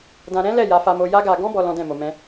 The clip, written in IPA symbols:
d ã˧ ɾ ɛ̃˦ l ɛ˦˨ j a˧ f a˧ m o˧ j a˦ ɡ a˧ ɡ ɔ̃˦ b ɔ˧ l ɔ̃˦ d ɛ̃˦˨ m o˧ m ɛ̃˦

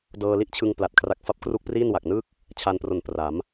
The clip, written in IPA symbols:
d ɤː˧ l i˥˩ ʔ t͡ɕʰ ɯ˧ ŋ p l a˨˩ t̚ kʰ r a˦˥ k̚ f a˦˥ p̚ k r u˥˩ k̚ p r iː˥˩ n w a˨˩ k̚ n ɯː˥˩ k̚ | t͡ɕʰ a˧ n p r o˨˩ n p r a˩˦ m

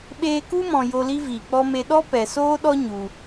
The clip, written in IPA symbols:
ɓ eː˧ k u˦ m ɔ̃˨ j o˧ l i˦ v iː˨ k͡p ɔ˦ m e˧ ɗ ɔ˦ p ɛ˨ s oː˦ ɗ ɔ˦ ɲ u˧

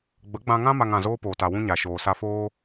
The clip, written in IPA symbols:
ɡ͡b ə˨˦ ɡ͡b ã˧ ŋ ã˦ m a˧ ŋ ã˨ z oː˦ p oː˨ t a˨ w ũ˦ ɲ a˨ ʃ oː˨ s a˧ f oː˦

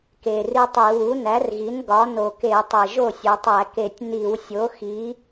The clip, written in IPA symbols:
k e˨˩ r i˦ tˤ i˧˩˧ w u˩˥ n æ˩˥ r ɣ i˩˥ n ɡ ɒ˩˥ n o˨˩ k e˧˩˧ tˤ e˨˩ ʒ o˥˩ sʲ o˩˧ tˤ æ˧˩˧ k e˨˩ tʲ n i˧˩˧ w sʲ o˩˥ x i˩˥

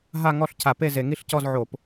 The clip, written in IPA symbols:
ɦ a˥˧ ŋ ɔ˥˧ ɬ cʰ a˧˩˧ p e˥˧ z e˧˩˧ ŋ i˥˧ ɬ c ɔ˥˧ z ʕ o˧˩˧ p

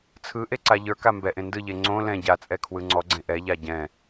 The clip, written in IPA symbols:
t͡sʰ ɯ ʔ e ǀ a ʎ ə˞ k a m b ɛ ʔ ẽ n d ɯ ʎ e ŋ͡ǀ õ l ɛ̃ ɟ a t͡sʼ ɛ kʰ w ɯ ŋ͡ǀ ɔ ɡ͡ǀ ẽ ʔ ɛ ʎ a ɟ ɛ̃

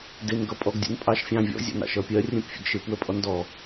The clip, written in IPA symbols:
d ɪ n ɡ ʌ pʼ ɔ ɡ dʲ ə̰ n pʼ ɑ ʃ fʲ ɑ̃ vʲ ɔ̰ zʲ ɔ̰ n ɑ̰ ʃ ʌ pʲ ɜ rʲ ə̃ p fʲ ə̰ ɡ ʃ ɪ p w ə pʼ ɔ n d ɔ

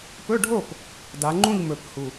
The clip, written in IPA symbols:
p ɵ˧˥˧ ɖʱ o˥˨ p | d a˩˧ ŋ͡ǃ ũ˥˨ ʎ m ɵ˨˩ p h u˨˩

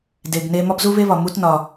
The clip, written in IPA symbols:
d e˩ ɡ n e˧ m ɒ˥ b z u˥ β e˥ β ɒ˩ m u˧ t n ɒ˩

